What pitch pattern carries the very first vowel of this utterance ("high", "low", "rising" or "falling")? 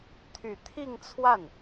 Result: low